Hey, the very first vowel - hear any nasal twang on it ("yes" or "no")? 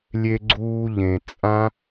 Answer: no